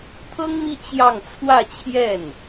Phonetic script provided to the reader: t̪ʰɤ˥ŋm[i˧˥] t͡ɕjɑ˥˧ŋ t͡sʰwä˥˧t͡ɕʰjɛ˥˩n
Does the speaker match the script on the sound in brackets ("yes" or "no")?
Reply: no